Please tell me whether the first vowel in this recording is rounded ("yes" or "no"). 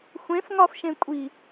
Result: no